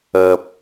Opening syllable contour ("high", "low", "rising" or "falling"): low